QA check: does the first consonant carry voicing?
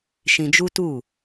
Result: no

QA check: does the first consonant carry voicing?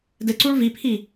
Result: yes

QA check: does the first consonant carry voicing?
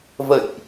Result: yes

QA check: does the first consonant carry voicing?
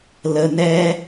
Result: yes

